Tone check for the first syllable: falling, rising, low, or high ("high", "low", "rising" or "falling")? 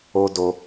high